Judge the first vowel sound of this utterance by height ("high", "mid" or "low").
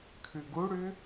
high